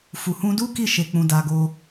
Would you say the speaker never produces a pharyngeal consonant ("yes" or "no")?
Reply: yes